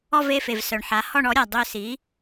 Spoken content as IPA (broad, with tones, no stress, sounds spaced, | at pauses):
ɔ˥˧ v e˥˧ f e˩ v s œ˩ ɳ ħ a˩˥ h ɔ˥˧ ɳ ɔ˩˥ ɾʲ a˩ dˤ ø˥˧ s i˩˥